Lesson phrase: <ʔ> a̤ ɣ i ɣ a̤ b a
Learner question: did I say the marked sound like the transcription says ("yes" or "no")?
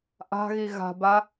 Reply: yes